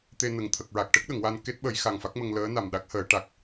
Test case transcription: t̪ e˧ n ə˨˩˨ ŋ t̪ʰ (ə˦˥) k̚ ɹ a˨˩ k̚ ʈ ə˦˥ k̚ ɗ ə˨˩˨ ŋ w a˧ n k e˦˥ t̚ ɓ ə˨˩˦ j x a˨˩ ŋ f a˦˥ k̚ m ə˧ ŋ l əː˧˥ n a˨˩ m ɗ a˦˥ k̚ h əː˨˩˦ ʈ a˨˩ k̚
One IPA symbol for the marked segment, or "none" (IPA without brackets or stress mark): ə˨˩